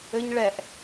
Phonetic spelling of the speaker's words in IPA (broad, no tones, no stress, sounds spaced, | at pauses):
ɘ ɲ ɭ ɛ ʔ